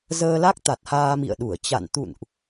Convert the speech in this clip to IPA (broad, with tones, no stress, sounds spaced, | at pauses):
z əː˧ l a˦˥ k̚ t̪ a˨˩ t̚ h aː˧ m ḭ˧˨ ə̯ ɗ u˧˩ ə̯ t͡ɕ a̰˧˨ n t̪ ṵ˧˨ n ʔ